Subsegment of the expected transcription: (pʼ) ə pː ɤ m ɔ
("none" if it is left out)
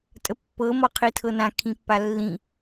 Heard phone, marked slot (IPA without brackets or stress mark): tʼ